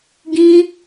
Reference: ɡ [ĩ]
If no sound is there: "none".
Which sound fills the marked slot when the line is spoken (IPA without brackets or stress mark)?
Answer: ĩ